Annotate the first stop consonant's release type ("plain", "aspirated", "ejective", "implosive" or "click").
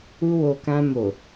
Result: plain